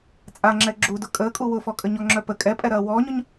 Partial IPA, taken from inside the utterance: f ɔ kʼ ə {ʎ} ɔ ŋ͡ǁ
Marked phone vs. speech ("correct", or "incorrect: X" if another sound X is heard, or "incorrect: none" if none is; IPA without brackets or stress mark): incorrect: ɲ